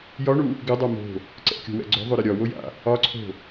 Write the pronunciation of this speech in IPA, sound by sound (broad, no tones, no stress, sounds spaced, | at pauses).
j ɒ ɳ u | ɡ ɪ dˤ ɛ m o̤ | ǀ ɛ̰ kʲ o̤ w ɛ̰ ɡ͡ǀ o̤ ðˤ o ɾ ɨ ɾʲ ɒ w o j a̰ | ɒ ǀʰ o̤